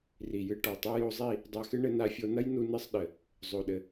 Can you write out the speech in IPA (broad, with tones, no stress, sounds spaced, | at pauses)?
r i˨ j ɨ˧ ʈ ɔ˨ tˤ ɛ˦ j o˧ zˤ i˦˨ | dˤ a˧ x ɨ˦ ɳ ɘ˧ n a˧ fʲ o˧ n ɐ˦ j n u˧ n ɨ˧ sˤ ɗ ɘ˨ | zˤ o˨ ɗ ɘ˨